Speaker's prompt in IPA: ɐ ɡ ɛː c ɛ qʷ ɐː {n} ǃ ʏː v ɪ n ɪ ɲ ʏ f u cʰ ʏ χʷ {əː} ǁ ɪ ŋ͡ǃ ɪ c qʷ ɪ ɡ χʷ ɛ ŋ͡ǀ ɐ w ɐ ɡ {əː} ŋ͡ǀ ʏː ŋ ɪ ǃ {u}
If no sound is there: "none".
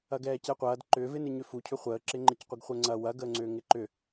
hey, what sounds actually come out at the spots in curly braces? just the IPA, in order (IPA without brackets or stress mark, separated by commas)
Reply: d, əː, əː, ʏ